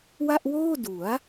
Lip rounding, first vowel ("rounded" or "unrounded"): unrounded